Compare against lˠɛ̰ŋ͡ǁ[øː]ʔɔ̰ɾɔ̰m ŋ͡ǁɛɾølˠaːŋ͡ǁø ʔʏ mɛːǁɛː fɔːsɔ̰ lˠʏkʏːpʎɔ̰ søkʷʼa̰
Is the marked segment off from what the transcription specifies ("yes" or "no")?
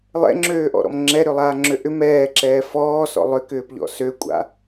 no